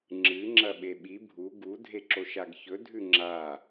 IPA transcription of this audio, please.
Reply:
ŋ͡ǁ ɨ ŋ͡ǁ ɐ ɓ e ɓ i bʱ u ɡ u dʱ e ǁ o ʃ a ɡ ç ɵ dʱ ʉ ŋ͡ǁ a

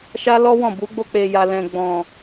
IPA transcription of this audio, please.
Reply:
ʃ a˦ l ɔ˦ w ɔ̃˦˨ b u˨˦ ɡ͡b o˧ k͡p e˨ j a˨ l ɛ̃˨ ɡ͡b ɔ̃˨

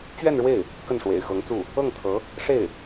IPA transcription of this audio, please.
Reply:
t͡ɕ ɥ ɛ˥˧ n ɻ w e˥˩ ɪ̯ | k ə˥˩ n ʂ w ḛ˨˩ ɪ̯ x ɤ˧˥ ŋ t͡s u˥˩ | ɤ˥˩ ŋ t̪ʰ ɤ˧˥ | ʂ e˥˩ ɪ̯

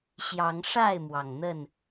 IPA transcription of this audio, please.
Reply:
ɕ j ɑ˨˦ ŋ ʂ a˥˨ ɪ̯ m w ɑ˩ ŋ n̪ ə˥˨ n

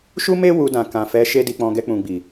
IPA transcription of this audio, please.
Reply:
ʃ u˦ m e˦ w u˧ d ã˨ k ã˨ f ɛ˨˦ ʃ e˧ d i˨ k͡p ɔ̃˨ ɡ ɛ˧ k͡p ũ˨ ɡ͡b i˨

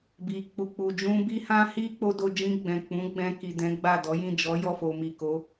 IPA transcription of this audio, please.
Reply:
b i˨ k͡p u˨ k͡p u˨ d͡ʒ ũ˧ b i˦ h ã˦ h i˦ k͡p o˧ d o˧ d͡ʒ ĩ˧ ɡ͡b ɛ̃˨ k͡p ũ˨˦ ɡ͡b ɛ̃˧ k i˨ d ɛ̃˨˦ ɡ͡b a˦˨ d ɔ˨˦ j ĩ˦˨ d͡ʒ ɔ˨˦ j ɔ˦˨ f o˨ m i˨ k o˨˦

